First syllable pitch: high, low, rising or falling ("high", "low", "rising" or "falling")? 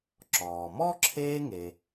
low